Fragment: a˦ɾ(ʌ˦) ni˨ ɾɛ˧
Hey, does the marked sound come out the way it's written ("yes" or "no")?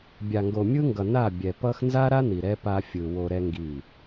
no